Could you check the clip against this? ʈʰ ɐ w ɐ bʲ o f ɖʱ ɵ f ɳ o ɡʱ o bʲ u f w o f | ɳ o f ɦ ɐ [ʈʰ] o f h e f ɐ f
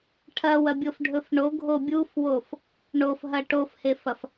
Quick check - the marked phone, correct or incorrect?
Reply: incorrect